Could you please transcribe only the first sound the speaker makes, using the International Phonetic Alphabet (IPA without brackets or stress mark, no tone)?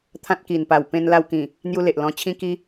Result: t̪ʰ